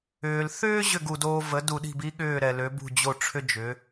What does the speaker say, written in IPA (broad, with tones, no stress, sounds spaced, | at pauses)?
ʏː˩ l θ ʏː˥ ʑ ʏ˥˩ ɡ u˩ d oː˧ v ə˩˥ d u˩ ɗ i̤˥˩ b i˥ ɠ ʏː˥˩ ɾ ɛ˩ l ø˩˥ b ṳ˥˩ d͡ʑ o˥˩ ʈ͡ʂʰ ʏ˥ d͡ʒ ʏ˩˥